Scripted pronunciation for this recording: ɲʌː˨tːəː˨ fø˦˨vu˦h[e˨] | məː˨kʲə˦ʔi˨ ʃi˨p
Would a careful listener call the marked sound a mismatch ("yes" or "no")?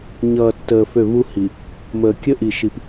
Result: yes